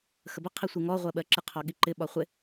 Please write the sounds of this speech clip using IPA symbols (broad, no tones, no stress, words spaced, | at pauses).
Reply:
xəbə qʰisʷiŋɔ ʁʷɜɓɜǁɪ qʰɔɠiǃɪ ɓɒχʷɪ